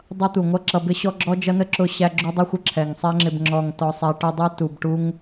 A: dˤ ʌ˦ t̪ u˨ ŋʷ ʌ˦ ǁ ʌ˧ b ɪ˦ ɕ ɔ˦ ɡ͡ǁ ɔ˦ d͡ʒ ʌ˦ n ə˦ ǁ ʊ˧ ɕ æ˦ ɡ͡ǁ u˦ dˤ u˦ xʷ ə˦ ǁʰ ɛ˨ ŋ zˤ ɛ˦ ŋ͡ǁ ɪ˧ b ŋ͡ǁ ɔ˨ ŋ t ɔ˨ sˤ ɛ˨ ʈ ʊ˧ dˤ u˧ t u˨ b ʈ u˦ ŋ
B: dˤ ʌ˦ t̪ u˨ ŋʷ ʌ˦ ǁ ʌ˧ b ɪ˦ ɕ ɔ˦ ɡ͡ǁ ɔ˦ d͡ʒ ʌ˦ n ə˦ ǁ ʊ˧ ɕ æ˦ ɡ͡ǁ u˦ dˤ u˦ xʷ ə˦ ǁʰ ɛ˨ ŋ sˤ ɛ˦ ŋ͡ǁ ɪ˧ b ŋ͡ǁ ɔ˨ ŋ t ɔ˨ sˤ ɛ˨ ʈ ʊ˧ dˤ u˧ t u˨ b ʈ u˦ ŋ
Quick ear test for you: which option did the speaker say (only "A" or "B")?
B